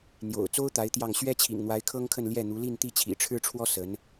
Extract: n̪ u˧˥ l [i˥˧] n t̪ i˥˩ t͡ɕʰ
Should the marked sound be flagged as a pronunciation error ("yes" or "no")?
no